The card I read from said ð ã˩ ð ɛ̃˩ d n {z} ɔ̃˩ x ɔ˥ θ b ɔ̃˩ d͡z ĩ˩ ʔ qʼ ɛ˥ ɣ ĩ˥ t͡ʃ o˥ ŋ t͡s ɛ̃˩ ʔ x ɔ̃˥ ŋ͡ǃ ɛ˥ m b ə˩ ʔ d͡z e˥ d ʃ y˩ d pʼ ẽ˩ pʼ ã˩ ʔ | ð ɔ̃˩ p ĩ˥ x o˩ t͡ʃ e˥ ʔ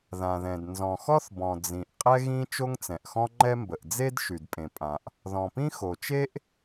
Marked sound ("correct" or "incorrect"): correct